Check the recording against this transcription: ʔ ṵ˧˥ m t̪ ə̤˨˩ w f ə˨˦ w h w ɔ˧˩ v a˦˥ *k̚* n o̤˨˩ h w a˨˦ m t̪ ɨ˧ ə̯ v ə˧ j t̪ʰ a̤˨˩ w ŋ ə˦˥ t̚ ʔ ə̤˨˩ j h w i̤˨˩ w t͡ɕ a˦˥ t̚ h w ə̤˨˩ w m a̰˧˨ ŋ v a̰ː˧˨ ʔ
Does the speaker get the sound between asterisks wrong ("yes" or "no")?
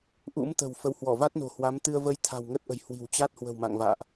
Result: yes